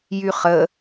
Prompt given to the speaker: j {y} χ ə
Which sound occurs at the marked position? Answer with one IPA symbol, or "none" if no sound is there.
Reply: y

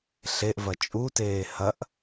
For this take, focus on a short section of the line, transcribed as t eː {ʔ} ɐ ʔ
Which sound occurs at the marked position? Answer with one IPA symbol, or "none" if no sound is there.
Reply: h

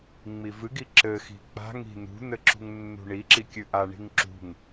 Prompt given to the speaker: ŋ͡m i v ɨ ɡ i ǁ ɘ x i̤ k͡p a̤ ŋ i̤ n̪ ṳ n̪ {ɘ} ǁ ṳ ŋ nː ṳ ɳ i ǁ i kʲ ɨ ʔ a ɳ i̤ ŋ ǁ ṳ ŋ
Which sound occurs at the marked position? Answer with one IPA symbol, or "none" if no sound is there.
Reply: ɘ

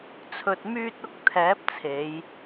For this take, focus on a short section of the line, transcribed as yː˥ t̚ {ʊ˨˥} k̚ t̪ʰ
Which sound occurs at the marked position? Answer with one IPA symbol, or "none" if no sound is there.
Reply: ʊ˥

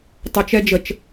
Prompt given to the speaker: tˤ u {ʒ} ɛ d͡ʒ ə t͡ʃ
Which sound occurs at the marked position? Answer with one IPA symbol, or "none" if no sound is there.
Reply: t͡ʃ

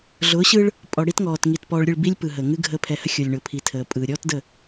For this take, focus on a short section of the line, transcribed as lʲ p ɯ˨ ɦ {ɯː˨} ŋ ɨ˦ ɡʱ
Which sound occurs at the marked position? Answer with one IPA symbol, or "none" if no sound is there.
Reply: əː˨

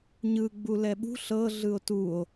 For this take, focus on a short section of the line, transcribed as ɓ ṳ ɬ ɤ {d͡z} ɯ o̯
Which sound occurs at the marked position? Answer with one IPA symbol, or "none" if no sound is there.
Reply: ɮ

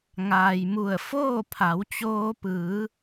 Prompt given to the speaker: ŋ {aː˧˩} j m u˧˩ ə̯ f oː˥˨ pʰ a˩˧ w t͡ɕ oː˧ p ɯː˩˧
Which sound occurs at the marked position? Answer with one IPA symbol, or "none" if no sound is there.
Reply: aː˩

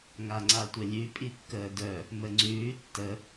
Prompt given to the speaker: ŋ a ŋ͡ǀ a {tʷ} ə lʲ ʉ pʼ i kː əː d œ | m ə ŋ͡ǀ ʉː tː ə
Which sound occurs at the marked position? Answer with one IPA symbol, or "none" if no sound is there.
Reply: tʷ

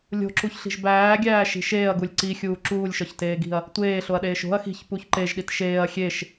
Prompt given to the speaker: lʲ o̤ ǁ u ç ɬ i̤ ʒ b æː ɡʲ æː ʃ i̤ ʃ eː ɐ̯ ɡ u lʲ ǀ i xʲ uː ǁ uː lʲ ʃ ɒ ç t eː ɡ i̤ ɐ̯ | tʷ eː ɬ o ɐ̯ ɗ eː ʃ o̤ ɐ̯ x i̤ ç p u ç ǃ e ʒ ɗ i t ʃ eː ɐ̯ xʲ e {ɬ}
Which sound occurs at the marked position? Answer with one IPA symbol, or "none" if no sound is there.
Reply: ʃ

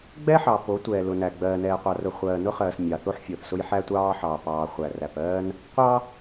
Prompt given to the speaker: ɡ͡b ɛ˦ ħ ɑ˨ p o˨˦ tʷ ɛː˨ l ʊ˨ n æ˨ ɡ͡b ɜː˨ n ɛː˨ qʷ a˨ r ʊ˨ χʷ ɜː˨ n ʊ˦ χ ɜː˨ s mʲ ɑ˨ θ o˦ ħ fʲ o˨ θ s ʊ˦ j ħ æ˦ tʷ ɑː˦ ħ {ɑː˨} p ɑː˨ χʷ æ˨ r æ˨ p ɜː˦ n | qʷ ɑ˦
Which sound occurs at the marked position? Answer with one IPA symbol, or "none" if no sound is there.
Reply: ɑː˨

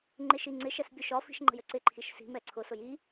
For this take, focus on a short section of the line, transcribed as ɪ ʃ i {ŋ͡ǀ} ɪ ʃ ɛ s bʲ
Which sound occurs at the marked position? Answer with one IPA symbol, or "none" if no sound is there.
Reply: ŋ͡ǀ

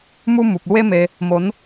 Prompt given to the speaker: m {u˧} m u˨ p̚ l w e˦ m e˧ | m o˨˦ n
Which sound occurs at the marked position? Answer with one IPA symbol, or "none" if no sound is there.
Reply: u˧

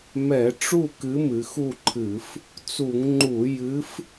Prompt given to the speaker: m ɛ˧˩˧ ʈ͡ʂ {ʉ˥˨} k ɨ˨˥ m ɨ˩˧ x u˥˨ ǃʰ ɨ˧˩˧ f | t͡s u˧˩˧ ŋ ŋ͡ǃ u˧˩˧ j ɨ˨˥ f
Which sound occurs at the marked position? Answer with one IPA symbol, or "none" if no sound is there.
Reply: u˥˨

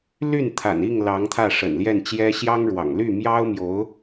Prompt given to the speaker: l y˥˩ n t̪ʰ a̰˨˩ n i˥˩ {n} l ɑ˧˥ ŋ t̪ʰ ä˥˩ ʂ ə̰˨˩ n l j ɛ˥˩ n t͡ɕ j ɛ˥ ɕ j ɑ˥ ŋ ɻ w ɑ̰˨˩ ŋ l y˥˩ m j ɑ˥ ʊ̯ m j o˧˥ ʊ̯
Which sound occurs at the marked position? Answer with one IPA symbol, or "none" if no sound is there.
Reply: ŋ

